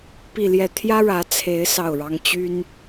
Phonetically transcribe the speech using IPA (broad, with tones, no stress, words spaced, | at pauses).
pi˥˧ljɛ˥˩ t̪ʰjä˥ɻä˧˥ t͡sʰe˧˥ɪ̯ sɑ˥˩ʊ̯ɻɑ˥ŋ t͡ɕy˥n